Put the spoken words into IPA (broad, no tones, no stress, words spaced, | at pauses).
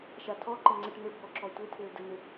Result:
ʃatʰɔǃɘ ŋ͡ǀəʈ n̪ɘbʱɔ ǁɔtʷɘtʰɘː dən̪ʏ